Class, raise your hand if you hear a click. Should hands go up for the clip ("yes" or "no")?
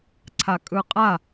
yes